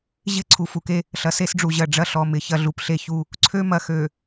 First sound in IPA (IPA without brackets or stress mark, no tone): ʑ